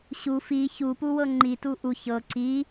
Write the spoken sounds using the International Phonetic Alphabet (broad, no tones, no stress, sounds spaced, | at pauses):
ɕ u f i ç u p u w ɤ ŋ͡ǃ i t u ʔ u ç ɤ ǀ i